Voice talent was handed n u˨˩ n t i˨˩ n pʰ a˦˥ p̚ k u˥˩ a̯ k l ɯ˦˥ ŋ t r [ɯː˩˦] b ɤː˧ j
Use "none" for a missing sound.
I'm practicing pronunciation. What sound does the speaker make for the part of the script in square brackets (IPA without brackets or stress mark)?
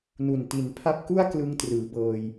ɯː˩˦